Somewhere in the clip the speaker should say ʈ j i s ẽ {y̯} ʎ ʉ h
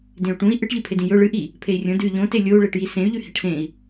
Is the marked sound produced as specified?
yes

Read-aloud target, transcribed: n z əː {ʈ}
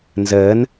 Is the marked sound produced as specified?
no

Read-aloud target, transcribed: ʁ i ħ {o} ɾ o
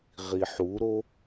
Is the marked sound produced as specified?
no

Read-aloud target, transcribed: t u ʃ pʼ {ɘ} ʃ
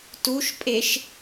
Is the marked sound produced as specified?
no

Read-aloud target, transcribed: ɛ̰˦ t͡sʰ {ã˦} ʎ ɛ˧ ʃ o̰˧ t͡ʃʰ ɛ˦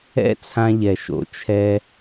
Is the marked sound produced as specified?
yes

